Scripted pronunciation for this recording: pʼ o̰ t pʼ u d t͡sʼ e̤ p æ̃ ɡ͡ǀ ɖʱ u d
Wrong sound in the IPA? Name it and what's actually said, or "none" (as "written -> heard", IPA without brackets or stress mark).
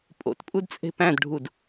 ɡ͡ǀ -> d